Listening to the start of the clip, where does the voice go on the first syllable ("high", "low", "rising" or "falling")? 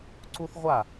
high